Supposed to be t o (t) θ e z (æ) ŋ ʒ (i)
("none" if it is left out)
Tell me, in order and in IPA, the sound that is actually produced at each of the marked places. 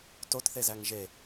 t, æ, e

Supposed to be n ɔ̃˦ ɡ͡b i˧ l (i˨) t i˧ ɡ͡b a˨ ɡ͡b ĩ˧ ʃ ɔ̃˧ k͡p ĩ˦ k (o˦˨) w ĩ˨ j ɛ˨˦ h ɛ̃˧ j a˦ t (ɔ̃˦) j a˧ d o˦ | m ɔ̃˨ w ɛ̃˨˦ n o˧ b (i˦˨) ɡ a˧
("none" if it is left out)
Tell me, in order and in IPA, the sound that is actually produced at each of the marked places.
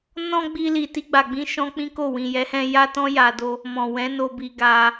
i˨, o˦˨, ɔ̃˦, i˧

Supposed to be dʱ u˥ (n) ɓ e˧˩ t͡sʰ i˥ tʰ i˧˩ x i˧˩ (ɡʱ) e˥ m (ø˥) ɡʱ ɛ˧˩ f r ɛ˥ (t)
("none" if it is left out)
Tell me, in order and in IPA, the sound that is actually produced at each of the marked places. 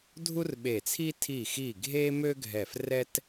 r, ɡʱ, ø˥, t

